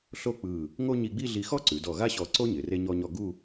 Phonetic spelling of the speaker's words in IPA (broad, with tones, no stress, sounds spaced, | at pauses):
ɬ o˥˧ k͡p ɯ˧˩ | ŋ o˥ ɲ i˧ ɡ͡b i˥˧ ɮ i˧ x ɔ˥ ǀ ʉ˩˧ d ɔ˧˩ ɣ a˥ ɕ ɔ˧ ǀ o˥ ɲ ɪ˩˧ r e˥ ɲ ɔ˥ ɲ ɔ˥˧ ɡ u˥˧